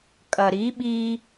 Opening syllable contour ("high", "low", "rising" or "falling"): low